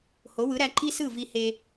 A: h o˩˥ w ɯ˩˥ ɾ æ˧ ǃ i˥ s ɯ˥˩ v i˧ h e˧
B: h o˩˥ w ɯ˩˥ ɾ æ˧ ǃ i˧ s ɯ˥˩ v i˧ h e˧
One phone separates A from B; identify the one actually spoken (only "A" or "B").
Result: A